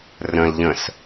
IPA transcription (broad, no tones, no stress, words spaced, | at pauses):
rə̃lʎə̃s